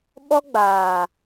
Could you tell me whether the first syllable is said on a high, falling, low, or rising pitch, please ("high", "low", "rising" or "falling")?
high